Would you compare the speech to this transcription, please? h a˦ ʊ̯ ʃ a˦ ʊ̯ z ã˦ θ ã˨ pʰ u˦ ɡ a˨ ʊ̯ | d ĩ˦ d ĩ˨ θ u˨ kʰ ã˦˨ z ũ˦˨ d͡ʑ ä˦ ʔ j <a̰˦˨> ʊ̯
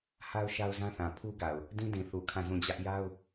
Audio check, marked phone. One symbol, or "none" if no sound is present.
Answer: a˦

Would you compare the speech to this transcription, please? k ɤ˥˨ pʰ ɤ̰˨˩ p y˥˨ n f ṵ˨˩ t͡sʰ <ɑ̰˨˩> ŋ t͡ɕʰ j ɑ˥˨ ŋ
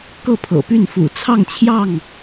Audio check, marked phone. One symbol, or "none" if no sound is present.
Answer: ɑ˥˨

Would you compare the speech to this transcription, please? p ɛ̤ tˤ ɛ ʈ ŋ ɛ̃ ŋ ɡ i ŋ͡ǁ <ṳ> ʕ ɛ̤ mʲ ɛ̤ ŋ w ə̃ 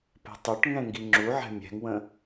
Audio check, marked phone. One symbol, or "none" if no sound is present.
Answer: u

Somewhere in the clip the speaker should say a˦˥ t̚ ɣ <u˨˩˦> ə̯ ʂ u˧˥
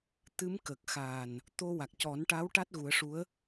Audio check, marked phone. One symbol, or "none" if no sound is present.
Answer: u˨˩˦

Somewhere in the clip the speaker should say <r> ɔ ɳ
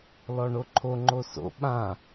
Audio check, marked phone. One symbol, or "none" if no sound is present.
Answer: l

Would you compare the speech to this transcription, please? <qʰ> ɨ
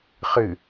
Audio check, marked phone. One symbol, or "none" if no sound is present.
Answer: χ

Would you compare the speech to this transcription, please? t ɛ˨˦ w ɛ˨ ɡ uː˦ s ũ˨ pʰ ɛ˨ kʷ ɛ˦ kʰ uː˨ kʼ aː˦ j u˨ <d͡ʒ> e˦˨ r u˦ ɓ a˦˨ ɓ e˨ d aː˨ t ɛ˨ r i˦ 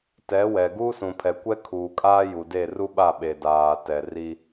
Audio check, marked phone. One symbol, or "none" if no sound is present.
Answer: d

